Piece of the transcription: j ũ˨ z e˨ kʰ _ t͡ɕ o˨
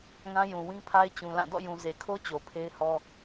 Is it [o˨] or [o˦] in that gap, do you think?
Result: o˦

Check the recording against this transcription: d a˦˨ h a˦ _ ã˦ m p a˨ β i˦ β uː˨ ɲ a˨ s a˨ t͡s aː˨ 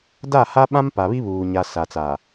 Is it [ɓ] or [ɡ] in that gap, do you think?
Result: ɓ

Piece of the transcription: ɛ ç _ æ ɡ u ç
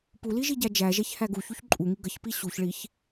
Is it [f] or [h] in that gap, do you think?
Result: h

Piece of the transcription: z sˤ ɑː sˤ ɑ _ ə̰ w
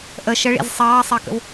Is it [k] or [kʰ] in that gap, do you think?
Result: k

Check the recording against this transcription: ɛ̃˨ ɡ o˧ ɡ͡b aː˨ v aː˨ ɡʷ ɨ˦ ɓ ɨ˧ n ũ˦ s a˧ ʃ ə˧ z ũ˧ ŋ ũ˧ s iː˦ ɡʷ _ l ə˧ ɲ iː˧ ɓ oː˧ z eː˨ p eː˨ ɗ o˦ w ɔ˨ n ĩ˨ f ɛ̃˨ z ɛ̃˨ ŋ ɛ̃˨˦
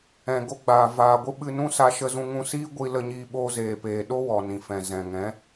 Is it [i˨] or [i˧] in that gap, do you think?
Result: i˧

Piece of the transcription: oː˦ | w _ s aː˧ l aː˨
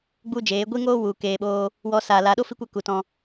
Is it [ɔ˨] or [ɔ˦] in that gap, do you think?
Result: ɔ˦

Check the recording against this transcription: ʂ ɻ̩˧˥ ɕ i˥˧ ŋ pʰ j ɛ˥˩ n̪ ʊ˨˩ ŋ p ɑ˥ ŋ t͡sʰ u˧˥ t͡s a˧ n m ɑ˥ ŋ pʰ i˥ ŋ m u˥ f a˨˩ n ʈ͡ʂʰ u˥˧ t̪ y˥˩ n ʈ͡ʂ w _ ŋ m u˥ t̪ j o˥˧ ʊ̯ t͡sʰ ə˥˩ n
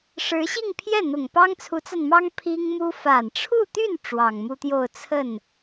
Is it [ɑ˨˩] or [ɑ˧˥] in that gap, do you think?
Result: ɑ˨˩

